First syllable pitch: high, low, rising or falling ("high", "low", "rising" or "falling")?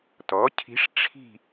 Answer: rising